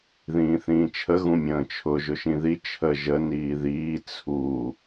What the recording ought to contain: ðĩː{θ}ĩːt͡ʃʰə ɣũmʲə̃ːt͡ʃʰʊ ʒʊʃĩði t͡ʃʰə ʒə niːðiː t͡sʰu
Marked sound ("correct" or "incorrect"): correct